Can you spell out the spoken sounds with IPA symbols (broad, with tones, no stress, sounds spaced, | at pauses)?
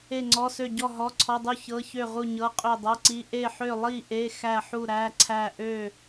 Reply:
e˥˨ ŋ͡ǀ ɔ˧˥˧ s ø˥˨ ɟ ɔ˥˨ ɦ ɔ˧˥˧ ǀʰ ɔ˧˥˧ dˤ u˥˨ ç ɤ˧˥˧ ç ø˥˨ ʁ u˥˨ ɲ ɤ˧˥˧ qʼ ø˥˨ dˤ ɤ˧˥˧ ǀ i˧˥˧ ʔ e˥˨ ħ ø˥˨ lˠ i˥˨ ʔ e˧˥˧ x æ˥˨ ħ u˥˨ ɾ æ˧˥˧ ǀʰ æ˥˨ ʔ ø˥˨